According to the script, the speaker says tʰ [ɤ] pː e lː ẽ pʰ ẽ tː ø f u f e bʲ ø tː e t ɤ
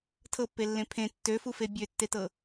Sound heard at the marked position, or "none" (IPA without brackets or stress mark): ɤ